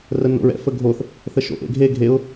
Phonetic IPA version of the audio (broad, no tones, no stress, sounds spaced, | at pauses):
r ə n o̰ ɹ ɛ̰ f ə ɡʱ o θ | θ ə ʃ o̰ ʔ ḛ ɡʱ e ɡʱ e ʊ̯